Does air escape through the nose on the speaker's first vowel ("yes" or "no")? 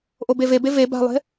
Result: no